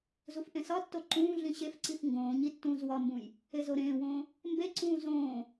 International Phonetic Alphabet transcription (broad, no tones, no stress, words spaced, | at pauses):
zufʔẽsɒtːo ǃũː ɮĩɕefǀif ŋɡõːɲi tːũːzwɒmbũj | ezoɾẽːwõː | mbeǀũː zõː